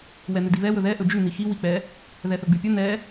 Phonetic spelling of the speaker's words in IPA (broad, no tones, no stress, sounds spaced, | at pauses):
w ɛ n ʉ d i β ɛ w ɵ ð ɛ ʔ ɵ d͡ʒ ʉ n i x i w i k͡p ɛ | ð ɛ θ ɵ ɡ͡b ʉ pʲ ɵ n ɛ